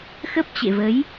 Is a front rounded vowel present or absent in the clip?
absent